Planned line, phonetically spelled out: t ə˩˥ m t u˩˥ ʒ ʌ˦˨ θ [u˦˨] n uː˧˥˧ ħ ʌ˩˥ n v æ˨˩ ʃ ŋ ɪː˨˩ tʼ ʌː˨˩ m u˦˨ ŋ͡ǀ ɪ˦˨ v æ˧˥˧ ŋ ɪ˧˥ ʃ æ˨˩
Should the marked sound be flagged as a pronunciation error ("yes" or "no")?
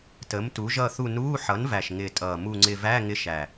no